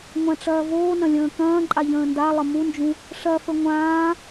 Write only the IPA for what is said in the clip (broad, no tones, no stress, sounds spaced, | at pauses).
ŋʷ ã ʈ͡ʂ ɐː v oː n ɐ̃ lʲ ə̃ː k ɐ̃ː ǃʼ a ʎ ə̃ː n d a lˠ ə m u n d͡ʒ ũ | ʂ ɐ f ə ŋʷ ãː